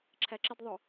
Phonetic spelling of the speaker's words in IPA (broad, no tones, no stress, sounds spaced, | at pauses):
ǁʰ æ ǁ ɪ d ðˤ ʊ